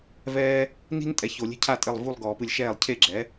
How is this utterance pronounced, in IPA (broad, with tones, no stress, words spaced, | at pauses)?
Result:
vɛː˥ | ni̤˥ntʼɛ˩˥ ço˨˩˦lʲe̤˥cʰa˥˧ tʼɘ˥˩lˠ vu˥˧lˠɡɔː˨˩˦pɨ˨lʲʃɛː˥˩lˠ cʰe˥˩ɡ͡ǁɛ˩˥